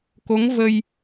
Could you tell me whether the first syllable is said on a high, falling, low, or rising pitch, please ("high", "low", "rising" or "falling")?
rising